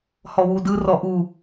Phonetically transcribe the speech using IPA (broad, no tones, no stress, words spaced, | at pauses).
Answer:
hɔwudɯ rɔʔu